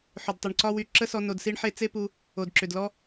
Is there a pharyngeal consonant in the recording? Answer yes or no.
yes